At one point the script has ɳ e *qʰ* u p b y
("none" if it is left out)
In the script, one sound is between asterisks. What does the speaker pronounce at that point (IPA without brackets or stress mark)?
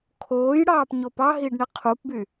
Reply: qʰ